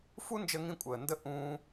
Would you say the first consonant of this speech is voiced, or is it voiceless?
voiceless